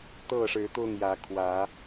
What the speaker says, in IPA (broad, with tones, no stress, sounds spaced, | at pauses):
t̪ ɤ˥˨ ʂ ɻ̩˨˦ t̪ ʊ˥˨ ŋ j ä˨˦ kʰ w ä˨˦